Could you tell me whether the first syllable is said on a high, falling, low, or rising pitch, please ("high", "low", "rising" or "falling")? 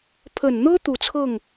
low